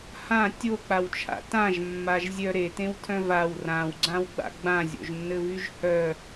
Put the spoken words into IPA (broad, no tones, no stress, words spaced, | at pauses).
hã tʲok͡pawt͡ʃʰa̰ tãʒmːaʒzʲœ ɾetẽwtʰœ̃ vaw rãwɡ͡ǀãwɡ͡ba̰ ɡ͡bãzʲo̰ʒnːɘvyʒ hœ